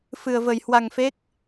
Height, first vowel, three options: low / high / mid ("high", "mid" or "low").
high